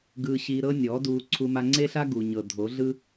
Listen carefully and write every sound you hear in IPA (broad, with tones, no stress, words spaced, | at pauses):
ɡɯː˧ ɕiː˧ ɾɤ˦nʲɔː˨˦duː˧ ǀʰu˧ma˧ŋ͡ǀe˦ɬa˦ ɡu˨ɲɤ˨ dʱo˨˦ɮɯ˦